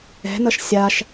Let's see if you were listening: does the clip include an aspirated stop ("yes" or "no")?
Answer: no